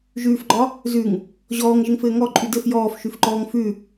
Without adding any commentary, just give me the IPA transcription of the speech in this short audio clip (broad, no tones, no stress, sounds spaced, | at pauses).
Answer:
ʒ ʉː f ɡ͡ǃ ɒ | z ʉ ŋ | ʑ ɔː ŋ ʒ ɘ ŋ f ɘː ŋ ɔ ǃʼ ʉ d ɘ f j ɔː f ʃ ʉ f ǃ ɔː ŋ f ʉ